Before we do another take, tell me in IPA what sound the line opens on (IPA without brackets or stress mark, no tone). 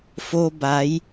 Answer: f